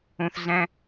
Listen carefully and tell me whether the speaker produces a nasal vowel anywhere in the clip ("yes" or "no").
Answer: yes